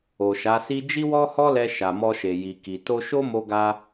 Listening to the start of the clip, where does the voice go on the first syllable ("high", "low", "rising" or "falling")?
low